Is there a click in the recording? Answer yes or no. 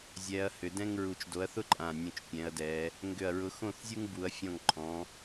yes